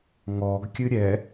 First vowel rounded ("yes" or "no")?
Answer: yes